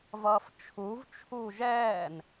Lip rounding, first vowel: unrounded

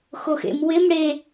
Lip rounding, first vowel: rounded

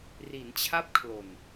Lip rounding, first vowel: unrounded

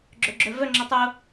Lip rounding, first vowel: rounded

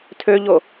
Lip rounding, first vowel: rounded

